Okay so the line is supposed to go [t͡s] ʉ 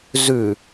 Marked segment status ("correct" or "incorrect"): incorrect